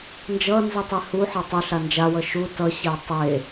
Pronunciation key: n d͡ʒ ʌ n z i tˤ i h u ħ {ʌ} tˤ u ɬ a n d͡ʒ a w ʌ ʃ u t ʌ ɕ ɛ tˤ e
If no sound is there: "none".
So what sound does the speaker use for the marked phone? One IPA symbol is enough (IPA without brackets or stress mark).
ʌ